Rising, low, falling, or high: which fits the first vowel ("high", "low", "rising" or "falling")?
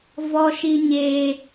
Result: high